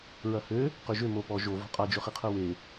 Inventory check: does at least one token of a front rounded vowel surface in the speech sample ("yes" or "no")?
yes